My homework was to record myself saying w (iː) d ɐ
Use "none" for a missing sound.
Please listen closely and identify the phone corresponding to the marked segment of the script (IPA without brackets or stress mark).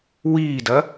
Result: iː